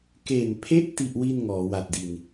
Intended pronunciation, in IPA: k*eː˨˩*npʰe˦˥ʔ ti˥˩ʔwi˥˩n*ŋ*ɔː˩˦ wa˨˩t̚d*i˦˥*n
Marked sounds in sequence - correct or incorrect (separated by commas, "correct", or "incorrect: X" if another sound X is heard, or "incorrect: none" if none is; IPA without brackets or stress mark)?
incorrect: e˨˩, correct, incorrect: i˨˩